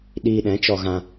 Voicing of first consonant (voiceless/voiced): voiced